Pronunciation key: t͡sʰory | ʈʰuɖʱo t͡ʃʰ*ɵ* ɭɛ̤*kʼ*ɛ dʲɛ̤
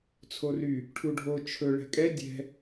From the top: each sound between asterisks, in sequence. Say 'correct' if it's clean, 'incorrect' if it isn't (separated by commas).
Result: correct, correct